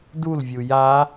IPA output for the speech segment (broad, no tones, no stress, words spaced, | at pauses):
dulvʲu ja